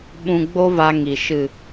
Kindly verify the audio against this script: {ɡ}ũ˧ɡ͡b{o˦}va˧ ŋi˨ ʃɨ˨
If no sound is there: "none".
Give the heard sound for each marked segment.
ɓ, o˦

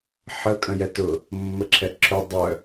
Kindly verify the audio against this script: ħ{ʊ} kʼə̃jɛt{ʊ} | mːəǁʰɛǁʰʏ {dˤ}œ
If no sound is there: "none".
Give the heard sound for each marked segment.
ə, ʊ, dˤ

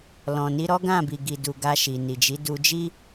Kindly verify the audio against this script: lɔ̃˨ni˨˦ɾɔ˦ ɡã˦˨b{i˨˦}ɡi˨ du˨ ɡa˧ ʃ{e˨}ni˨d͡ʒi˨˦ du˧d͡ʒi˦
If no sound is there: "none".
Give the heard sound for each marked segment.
i˨, i˨

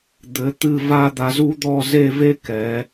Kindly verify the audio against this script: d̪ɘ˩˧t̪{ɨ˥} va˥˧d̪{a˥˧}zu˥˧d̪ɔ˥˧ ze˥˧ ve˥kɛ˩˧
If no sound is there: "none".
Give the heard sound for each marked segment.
ɨ˧˩, a˧

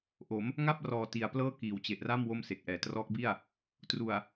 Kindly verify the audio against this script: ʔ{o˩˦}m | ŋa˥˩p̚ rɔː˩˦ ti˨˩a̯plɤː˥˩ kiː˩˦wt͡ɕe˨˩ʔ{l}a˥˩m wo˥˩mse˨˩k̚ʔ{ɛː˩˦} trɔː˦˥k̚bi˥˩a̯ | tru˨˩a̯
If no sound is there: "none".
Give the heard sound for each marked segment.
o˩˦, r, ɛː˩˦

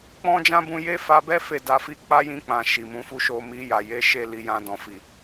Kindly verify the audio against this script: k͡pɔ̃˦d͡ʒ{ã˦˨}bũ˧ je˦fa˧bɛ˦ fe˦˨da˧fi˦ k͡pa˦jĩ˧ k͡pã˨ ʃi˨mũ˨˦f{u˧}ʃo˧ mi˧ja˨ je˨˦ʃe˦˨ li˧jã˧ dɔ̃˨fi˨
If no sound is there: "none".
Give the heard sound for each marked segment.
ã˦, u˦

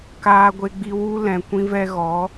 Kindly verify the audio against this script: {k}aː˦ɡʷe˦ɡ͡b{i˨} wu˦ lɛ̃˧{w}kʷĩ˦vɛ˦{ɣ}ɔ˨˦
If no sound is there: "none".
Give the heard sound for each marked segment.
k, i˦, none, ɣ

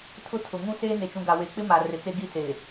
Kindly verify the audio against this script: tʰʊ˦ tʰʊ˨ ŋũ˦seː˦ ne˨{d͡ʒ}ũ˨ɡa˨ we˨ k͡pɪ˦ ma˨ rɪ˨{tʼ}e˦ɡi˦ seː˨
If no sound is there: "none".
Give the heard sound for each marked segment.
t͡ʃ, t͡s

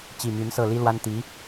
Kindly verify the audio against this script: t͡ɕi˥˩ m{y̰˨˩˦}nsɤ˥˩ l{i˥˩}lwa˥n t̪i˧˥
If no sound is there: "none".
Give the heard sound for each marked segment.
y˧˥, i˥

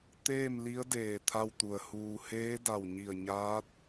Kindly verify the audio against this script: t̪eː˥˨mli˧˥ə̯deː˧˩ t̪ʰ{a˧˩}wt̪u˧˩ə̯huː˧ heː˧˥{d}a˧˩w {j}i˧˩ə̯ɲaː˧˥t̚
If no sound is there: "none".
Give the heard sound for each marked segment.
a˥˨, d, ɲ

